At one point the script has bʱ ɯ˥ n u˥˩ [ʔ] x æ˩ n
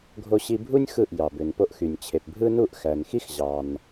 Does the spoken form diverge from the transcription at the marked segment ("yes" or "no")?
no